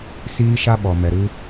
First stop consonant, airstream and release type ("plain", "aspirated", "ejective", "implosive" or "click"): implosive